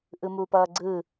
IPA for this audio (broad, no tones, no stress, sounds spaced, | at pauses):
ʔ ɯ m uː p ʌː ɡ͡ǀ ɯ